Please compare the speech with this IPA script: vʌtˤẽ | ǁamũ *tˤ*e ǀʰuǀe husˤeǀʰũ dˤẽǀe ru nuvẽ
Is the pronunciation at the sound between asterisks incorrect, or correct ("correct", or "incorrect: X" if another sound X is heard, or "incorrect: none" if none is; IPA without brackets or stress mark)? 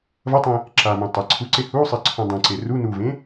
correct